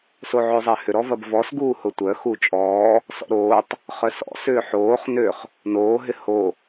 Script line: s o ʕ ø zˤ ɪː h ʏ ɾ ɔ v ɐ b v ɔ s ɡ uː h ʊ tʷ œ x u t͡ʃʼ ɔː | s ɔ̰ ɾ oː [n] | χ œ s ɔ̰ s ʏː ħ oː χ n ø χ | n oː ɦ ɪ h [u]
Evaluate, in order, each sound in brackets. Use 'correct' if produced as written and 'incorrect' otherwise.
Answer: incorrect: tˤ, incorrect: o

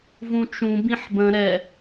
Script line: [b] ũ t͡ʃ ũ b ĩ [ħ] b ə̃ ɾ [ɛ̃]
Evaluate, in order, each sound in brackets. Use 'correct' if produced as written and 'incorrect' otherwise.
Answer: incorrect: v, correct, incorrect: ɛ

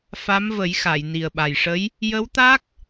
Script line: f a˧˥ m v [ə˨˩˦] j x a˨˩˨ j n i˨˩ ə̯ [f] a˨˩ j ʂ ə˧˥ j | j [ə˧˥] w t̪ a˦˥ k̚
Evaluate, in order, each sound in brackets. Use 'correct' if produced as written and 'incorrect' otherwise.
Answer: correct, incorrect: ɓ, correct

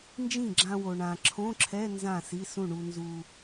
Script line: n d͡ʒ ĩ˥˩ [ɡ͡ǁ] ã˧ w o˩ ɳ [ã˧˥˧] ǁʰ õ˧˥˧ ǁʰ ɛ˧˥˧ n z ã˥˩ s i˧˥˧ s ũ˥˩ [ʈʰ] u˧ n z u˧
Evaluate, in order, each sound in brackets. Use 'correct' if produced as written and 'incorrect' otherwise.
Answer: correct, incorrect: ã˩, incorrect: ɳ

